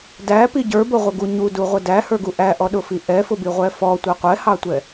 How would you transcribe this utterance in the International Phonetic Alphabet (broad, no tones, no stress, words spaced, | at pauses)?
dæpi ɟə˞bʊʁʷɪɡu ɲuduʁʷə dæhə˞ɡu ʔæʔɔɗʊfi ʔɛfʊbiʁʷɛ fɔtʷɛ qʷɛhɑtʷɛ